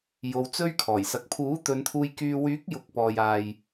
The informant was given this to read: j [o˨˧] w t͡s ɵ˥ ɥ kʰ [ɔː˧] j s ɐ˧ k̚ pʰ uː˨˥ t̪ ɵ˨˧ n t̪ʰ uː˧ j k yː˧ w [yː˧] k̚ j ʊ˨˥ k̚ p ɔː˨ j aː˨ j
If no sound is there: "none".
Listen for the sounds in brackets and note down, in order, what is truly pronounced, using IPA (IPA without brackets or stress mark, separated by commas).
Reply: o˧, ɔː˨˩, yː˨˥